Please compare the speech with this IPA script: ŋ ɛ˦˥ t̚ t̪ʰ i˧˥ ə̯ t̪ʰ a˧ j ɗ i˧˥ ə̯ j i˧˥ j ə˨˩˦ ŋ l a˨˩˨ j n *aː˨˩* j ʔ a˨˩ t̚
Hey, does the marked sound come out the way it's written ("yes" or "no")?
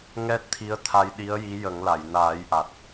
no